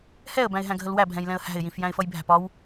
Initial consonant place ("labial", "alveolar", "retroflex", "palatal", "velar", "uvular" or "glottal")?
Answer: glottal